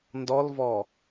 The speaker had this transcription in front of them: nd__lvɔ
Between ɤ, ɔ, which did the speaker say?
ɔ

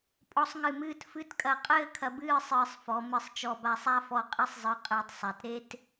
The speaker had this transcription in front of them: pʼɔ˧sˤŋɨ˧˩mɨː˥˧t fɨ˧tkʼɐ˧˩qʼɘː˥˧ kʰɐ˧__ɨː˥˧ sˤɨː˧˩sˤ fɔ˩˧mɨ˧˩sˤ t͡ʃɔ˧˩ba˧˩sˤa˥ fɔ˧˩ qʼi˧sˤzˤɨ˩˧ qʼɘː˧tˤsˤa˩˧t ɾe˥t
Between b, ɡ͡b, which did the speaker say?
b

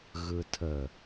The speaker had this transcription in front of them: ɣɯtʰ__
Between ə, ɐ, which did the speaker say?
ə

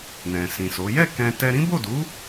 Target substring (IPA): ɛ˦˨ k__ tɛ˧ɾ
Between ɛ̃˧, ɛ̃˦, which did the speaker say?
ɛ̃˧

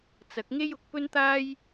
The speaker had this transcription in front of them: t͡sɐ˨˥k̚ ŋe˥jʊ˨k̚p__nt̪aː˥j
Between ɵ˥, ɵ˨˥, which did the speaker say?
ɵ˥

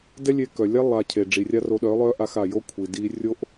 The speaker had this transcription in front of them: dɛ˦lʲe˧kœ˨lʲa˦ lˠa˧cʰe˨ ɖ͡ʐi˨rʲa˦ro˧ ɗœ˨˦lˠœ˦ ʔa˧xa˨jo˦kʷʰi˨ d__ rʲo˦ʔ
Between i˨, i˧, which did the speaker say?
i˧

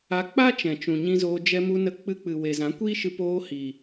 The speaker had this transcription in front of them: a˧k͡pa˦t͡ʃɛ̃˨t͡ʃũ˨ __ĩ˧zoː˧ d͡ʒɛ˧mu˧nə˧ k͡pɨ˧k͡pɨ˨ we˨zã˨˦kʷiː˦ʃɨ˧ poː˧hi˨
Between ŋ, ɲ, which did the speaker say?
ɲ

